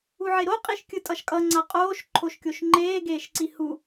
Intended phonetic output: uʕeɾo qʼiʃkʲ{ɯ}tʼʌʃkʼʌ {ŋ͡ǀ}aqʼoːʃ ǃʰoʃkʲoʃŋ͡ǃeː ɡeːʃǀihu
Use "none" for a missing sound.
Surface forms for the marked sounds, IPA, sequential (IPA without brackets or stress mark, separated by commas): ɯ, ŋ͡ǀ